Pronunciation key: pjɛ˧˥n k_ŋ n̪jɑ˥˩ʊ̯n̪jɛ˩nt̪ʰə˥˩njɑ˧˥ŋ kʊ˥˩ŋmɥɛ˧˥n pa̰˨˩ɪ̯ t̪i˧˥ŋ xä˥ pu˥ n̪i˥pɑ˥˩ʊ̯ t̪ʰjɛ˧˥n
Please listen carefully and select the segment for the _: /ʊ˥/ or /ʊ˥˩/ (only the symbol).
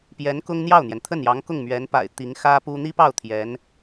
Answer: ʊ˥